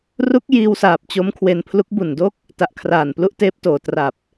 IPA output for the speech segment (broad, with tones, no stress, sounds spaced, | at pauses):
r u˦˥ k̚ j iː˧ w s aː˨˩ p̚ t͡ɕ o˦˥ m kʰ w e˧ n pʰ l u˦˥ k̚ b u˨˩ n d o˥˩ k̚ | t a˨˩ ʔ kʰ r aː˨˩ n p l u˥˩ ʔ t eː˦˥ p̚ t oː˨˩ t r a˨˩ p̚